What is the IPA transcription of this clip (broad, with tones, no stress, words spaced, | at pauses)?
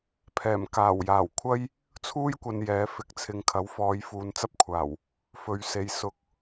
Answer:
pʰɛː˨˩mkaː˨˩wjaː˨˩w kʷʰɐ˥j | t͡sʰuː˥jkʷɐ˨n jɛː˨˥fɪ˨˥k̚t͡sʰɪ˧ŋ kʰɐ˨˥wfɔː˨˧j fuː˨˧nt͡sɐ˥p̚kʷʰaː˨˩w | fɵ˨ɥse˨jsʊ˧k̚